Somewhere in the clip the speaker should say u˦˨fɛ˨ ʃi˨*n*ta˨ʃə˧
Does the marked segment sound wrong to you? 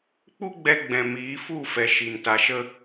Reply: no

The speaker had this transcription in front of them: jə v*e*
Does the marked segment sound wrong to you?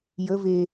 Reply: no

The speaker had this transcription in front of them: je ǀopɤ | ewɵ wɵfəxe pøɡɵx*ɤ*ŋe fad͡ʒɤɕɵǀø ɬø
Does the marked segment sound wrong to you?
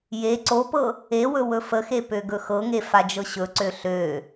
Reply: no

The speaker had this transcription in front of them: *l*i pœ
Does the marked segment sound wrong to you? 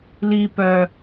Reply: no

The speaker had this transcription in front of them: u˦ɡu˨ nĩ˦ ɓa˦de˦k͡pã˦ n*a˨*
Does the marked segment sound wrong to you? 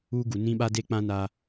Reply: yes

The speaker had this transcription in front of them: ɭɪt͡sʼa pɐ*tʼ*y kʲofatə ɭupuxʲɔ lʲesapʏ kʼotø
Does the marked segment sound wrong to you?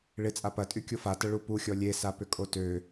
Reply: no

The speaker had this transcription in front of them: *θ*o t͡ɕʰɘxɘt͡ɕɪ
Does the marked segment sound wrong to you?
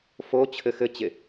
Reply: yes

